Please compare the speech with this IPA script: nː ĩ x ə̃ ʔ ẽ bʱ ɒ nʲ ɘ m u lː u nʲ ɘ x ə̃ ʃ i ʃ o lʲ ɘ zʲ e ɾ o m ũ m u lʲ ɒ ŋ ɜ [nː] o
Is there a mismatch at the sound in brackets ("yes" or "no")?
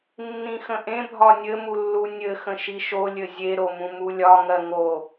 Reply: yes